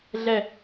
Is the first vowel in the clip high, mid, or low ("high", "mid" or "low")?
mid